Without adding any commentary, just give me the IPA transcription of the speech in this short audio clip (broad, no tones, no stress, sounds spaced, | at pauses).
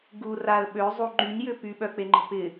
ɡ u r a ə̯ ɓ ø zˤ u ŋ͡ǃ y ɲ j ʏ p y ɓ œ k͡p e ŋ͡ǃ ə̤ p ɪ